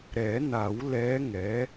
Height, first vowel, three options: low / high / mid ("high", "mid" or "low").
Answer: mid